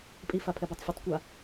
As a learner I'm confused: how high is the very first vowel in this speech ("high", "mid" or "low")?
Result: high